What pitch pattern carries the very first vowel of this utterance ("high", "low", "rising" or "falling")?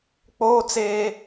high